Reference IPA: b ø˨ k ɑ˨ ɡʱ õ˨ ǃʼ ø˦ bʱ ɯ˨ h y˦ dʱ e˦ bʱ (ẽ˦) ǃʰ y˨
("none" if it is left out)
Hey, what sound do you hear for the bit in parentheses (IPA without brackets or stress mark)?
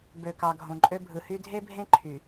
ẽ˦